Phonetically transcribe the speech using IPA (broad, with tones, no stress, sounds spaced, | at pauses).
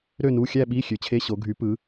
ɾ ø˥˧ n u˧˥˧ xʲ æ˥˧ ɓ i˧˥˧ xʲ ø˨˦ t͡ɕʰ e˧˥˧ ɕ o˨˦ ɡʱ y˨˦ p ɯ˨˦